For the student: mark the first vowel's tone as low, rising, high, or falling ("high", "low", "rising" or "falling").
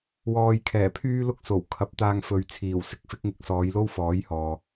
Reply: low